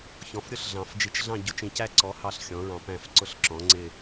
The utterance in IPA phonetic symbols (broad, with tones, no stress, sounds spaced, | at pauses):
ç ɔ̃˨˥ f ɾʲ ʊ˥˧ ɬ ɮ ɑ̃˨˩˦ f d͡ʒ i˧ t͡ʃ ɮ ɑ̃˥˧ ɟ ʊ˨˩˦ t͡ʃ ĩ˧ c æ˥˧ ǀ ɔ˨˥ h ɑ˥˩ ɬ xʲ ɔ̃˨˥ ɹ ɑ̃˧ p æ̃˥˩ f ǀ ʊ˥˧ ɬ ǁ ɔ̃˨˥ ŋ͡ǀ ɪ˥˧